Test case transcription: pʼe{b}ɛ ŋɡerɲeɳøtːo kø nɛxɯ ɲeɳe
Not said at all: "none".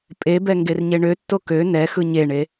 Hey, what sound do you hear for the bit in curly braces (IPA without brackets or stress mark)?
b